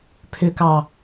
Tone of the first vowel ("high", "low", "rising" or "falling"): low